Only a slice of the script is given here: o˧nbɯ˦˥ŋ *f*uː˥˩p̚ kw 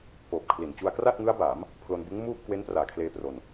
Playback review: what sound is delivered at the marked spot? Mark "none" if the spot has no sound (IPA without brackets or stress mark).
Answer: m